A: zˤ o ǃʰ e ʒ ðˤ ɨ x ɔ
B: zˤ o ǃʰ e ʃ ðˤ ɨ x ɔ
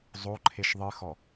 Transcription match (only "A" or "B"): B